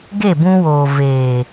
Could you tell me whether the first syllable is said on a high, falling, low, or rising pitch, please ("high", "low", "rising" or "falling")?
falling